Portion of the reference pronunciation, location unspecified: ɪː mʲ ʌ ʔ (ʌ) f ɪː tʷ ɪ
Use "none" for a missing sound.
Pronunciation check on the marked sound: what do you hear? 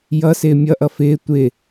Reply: ʌ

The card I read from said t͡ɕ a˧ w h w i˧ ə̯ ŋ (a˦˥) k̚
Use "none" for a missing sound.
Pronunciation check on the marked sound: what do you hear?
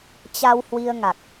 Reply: a˨˩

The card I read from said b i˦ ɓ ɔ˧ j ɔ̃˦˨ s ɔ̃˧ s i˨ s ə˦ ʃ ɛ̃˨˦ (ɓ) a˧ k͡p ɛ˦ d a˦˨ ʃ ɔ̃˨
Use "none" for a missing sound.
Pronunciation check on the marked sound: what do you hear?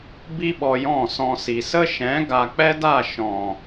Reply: ɡ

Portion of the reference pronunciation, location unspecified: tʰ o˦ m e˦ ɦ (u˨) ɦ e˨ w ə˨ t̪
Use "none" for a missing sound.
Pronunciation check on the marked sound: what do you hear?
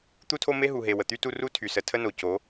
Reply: u˨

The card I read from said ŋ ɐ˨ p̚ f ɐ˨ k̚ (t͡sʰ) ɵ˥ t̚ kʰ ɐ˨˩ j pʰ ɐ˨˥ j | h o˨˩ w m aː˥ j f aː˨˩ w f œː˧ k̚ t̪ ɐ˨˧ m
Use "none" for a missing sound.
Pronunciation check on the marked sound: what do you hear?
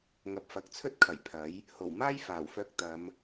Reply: t͡sʰ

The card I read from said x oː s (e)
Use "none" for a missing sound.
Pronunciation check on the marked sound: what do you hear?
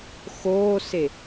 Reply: e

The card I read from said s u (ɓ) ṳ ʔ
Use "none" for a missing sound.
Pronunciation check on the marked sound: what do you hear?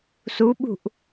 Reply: ɓ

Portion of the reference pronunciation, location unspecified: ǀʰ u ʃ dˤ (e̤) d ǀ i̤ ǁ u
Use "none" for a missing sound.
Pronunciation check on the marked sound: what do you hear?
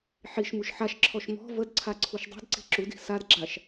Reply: i̤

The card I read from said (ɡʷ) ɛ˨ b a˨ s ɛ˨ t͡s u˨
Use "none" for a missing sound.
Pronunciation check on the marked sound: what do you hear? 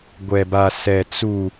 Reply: ɡʷ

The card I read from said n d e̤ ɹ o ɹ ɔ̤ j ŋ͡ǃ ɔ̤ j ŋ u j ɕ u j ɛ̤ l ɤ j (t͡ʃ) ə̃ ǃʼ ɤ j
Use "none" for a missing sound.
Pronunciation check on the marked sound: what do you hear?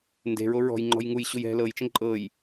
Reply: t͡ʃ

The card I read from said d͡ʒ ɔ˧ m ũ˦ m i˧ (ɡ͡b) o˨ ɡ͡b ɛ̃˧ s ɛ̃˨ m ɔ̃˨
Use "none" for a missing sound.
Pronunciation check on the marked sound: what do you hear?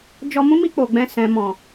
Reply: k͡p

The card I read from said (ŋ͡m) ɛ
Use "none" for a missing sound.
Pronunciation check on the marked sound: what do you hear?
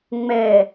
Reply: ŋ͡m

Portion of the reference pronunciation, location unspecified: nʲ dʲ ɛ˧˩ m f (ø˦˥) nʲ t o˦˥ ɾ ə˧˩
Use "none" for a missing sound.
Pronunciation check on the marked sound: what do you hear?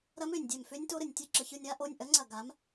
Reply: ø˦˥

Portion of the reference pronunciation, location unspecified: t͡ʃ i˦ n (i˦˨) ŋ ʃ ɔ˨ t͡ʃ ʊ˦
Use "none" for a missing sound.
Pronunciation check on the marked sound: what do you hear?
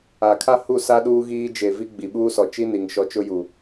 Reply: i˨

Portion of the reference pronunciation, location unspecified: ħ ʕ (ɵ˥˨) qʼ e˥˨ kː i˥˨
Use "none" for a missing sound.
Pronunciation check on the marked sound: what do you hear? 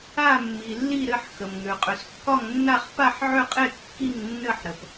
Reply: ø˥˨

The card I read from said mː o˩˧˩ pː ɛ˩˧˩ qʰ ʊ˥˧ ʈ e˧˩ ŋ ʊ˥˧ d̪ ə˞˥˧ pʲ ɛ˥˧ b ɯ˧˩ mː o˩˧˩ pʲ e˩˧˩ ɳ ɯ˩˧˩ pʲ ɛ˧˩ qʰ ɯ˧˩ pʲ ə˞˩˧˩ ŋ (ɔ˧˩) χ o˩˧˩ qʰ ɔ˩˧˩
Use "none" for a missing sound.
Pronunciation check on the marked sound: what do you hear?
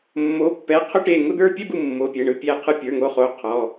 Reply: o˧˩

